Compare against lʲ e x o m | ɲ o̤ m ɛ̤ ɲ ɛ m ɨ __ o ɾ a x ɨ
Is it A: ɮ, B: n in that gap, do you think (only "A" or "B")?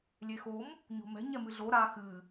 A